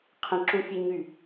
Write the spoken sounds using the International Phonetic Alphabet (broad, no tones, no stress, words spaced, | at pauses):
qʰə̃ǁũfʲe ɲy